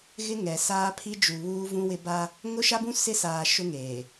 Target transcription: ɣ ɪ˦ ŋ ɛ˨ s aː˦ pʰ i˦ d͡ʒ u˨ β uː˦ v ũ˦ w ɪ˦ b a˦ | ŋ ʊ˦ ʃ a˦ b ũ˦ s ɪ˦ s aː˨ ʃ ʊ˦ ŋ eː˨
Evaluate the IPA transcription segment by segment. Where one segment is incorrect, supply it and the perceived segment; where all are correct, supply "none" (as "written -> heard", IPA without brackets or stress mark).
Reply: none